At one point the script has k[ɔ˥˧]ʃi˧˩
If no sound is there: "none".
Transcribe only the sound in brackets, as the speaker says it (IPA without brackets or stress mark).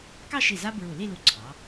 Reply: ɑ˥˧